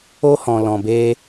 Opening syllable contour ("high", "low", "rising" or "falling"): high